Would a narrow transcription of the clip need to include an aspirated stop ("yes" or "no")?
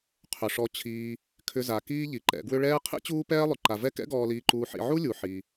yes